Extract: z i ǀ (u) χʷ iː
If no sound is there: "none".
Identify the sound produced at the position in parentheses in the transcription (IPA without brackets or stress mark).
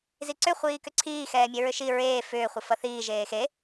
ʏ